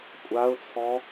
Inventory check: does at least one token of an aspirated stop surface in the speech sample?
yes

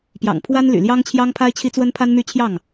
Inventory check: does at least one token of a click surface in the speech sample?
no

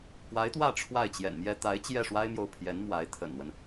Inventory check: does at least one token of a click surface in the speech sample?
no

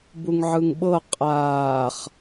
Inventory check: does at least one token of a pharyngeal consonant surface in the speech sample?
yes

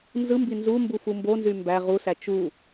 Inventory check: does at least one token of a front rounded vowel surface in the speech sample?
yes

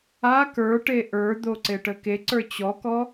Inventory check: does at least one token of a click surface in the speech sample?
yes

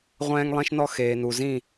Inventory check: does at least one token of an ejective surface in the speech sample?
no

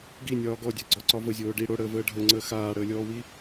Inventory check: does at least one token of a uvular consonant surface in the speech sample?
no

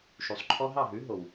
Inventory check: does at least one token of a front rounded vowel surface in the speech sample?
no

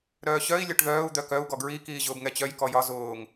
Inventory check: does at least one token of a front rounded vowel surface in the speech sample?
yes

